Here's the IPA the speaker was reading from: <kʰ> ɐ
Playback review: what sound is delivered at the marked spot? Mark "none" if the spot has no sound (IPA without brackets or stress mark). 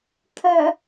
kʰ